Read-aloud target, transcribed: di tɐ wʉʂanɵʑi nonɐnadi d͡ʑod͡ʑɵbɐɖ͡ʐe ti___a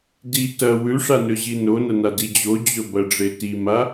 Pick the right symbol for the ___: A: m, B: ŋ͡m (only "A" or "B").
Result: A